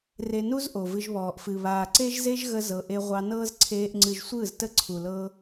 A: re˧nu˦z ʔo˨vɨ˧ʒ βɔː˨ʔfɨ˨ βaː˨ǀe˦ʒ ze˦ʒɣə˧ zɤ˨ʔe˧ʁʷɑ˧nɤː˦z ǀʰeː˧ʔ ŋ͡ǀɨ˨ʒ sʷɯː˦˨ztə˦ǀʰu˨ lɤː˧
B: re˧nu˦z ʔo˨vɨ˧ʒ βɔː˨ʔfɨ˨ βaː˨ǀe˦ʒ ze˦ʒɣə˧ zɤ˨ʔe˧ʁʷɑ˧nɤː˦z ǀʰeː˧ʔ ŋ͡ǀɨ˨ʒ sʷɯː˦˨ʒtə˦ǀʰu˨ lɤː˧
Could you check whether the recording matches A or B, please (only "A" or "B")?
A